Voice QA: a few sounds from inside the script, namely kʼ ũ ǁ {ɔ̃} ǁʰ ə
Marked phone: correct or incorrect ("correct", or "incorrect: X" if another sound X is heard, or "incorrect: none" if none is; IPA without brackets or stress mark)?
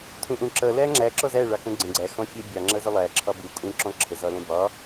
correct